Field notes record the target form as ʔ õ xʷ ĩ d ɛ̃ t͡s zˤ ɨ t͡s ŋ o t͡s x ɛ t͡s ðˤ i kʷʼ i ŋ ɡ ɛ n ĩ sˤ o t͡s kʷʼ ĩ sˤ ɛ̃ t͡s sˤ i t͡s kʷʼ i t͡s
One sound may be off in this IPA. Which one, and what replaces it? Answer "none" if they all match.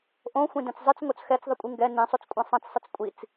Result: none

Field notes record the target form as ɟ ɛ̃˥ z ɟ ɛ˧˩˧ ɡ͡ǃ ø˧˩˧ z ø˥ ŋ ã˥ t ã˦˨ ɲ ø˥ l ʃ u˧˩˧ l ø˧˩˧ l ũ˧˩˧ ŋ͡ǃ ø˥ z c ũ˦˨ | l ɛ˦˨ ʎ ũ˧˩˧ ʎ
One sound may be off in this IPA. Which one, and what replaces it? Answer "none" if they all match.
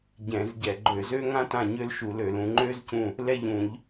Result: ɛ̃˥ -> ɛ̃˧˩˧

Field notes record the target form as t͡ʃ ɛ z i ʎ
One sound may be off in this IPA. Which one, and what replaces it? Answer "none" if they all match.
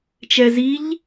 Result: none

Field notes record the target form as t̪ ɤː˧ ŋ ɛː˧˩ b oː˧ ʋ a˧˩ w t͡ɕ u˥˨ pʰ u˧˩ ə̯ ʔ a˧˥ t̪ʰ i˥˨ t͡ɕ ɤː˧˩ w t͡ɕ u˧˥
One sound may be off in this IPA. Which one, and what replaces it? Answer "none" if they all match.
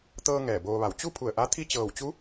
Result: none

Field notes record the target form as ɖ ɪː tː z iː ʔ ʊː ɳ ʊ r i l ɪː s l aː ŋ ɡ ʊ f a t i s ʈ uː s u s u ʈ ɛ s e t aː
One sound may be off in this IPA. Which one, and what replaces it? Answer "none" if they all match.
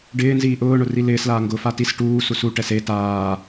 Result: tː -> n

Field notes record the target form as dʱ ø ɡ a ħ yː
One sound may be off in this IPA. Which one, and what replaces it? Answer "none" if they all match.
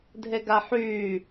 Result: ø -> e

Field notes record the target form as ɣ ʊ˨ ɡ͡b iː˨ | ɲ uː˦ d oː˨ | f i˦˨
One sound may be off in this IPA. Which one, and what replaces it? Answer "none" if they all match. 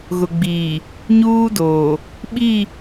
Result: f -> ɓ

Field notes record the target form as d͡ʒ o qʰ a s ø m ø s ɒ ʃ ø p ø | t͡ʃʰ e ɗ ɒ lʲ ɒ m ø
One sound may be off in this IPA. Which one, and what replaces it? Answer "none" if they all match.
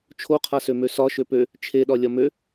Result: d͡ʒ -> t͡ʃʰ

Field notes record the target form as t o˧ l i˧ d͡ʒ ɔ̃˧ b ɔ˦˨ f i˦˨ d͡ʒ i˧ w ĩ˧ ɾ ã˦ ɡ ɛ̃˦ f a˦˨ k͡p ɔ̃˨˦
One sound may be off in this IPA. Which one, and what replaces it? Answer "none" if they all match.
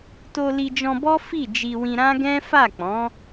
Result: ɔ˦˨ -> ɔ˦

